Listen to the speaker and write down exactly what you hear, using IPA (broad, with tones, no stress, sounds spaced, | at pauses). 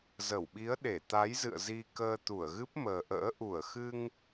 z ə˧˩ w ɓ i˨˦ ə̯ ɗ e˧˩ t̪ a˨˦ j z ɨ̰˧˨ ə̯ z i˧ k əː˧ t̪ u˧˩ ə̯ ɣ ɨ˦˥ p̚ m əː˨˩ ʔ ə̰ː˧˥ ʔ u˧˩ ə̯ x ɨ˧ ŋ